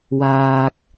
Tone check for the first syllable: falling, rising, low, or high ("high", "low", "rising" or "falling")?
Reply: low